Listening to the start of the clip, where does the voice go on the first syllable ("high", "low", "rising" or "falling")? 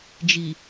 low